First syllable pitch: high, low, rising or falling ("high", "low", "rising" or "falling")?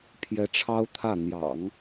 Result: rising